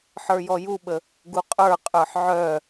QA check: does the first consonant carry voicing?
no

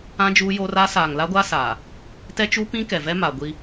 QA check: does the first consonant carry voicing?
yes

